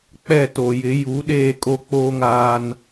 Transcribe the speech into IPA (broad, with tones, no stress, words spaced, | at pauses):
k͡pɛ˦˨to˨jɪ˨˦ ju˨˦ ɗeː˦˨kʼo˦k͡poː˦ŋaː˦n